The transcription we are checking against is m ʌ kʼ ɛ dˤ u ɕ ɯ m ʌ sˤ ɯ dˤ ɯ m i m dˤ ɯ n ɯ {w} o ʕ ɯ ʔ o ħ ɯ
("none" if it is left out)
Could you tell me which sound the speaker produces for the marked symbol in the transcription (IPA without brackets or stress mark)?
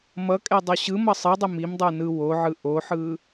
w